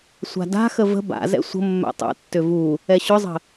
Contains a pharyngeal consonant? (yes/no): no